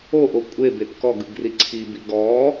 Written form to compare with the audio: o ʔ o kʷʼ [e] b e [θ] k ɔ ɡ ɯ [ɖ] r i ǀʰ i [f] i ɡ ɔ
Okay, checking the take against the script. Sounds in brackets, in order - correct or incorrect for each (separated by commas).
correct, incorrect, incorrect, incorrect